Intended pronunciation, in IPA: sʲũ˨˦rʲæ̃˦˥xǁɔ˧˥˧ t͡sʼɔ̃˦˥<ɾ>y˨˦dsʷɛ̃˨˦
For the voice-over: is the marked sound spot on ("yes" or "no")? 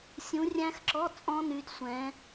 no